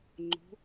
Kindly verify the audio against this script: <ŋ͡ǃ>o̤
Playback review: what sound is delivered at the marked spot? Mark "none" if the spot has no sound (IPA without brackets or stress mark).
ŋ͡ǃ